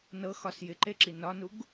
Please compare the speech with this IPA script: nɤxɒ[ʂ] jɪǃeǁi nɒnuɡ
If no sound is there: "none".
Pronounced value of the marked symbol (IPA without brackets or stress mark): s